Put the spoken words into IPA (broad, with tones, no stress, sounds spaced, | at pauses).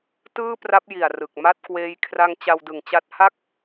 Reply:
t ɯː˥˩ p r a˦˥ p̚ j i˨˩ a̯ r ɯ˨˩ k̚ m a˥˩ t̚ k w eː˦˥ j kʰ r a˦˥ ŋ t͡ɕ a˧ w d ɯ˨˩ ŋ t͡ɕ a˦˥ t̚ h a˥˩ k̚